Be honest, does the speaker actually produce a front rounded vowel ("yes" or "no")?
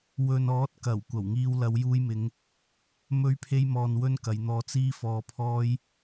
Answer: no